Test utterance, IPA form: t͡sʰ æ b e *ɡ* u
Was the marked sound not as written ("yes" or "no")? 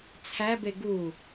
no